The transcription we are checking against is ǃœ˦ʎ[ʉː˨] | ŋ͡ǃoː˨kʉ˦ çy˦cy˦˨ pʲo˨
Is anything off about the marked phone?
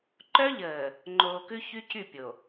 yes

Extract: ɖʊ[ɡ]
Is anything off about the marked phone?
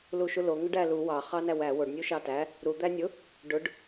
yes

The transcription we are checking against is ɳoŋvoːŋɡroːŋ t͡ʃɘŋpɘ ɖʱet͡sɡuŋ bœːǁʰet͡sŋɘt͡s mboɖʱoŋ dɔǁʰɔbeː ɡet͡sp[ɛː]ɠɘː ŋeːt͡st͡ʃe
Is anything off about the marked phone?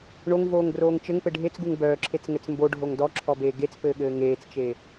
yes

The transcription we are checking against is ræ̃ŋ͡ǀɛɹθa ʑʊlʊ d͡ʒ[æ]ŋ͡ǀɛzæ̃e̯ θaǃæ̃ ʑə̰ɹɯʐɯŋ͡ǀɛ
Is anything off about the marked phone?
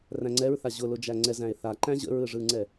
no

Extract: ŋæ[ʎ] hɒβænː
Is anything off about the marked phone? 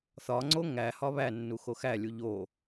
yes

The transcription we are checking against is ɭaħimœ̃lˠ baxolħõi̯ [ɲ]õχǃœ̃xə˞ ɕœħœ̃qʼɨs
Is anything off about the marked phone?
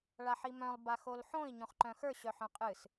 no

